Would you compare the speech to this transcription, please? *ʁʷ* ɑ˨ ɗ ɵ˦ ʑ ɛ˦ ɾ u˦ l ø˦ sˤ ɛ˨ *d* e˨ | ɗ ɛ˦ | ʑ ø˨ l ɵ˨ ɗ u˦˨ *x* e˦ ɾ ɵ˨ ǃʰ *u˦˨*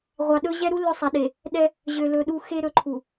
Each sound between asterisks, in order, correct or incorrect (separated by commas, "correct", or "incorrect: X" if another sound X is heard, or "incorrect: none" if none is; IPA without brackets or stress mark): correct, incorrect: ɗ, correct, incorrect: u˨